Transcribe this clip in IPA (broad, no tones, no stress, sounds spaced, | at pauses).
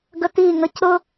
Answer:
ɡ ə t i ŋ ʌ c ɾ ʊ